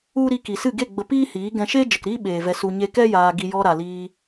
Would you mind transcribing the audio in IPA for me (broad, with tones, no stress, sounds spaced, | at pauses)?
u˦ ɾ i˧ k i˨ s ɨ˦˨ ɡ e˦˨ ɡ͡b ə˧ p iː˦ h iː˨˦ ɡ ɛ̃˧ ʃ eː˦ d͡ʒ ə˨ k ɾ iː˦ ɓ eː˨ v ɛ˧ s u˧ ɲ e˧ k ɛ˦ j aː˧ ɡ i˧ j ɔ˧ ɾ a˨ l iː˧